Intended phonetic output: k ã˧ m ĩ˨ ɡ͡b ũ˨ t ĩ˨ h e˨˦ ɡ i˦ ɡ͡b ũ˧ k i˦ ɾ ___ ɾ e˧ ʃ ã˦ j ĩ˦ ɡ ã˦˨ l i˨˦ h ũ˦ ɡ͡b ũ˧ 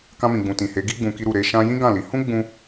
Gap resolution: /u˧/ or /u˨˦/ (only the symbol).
u˧